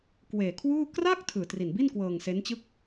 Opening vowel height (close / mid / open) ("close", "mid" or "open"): mid